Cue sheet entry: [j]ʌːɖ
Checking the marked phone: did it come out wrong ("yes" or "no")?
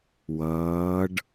yes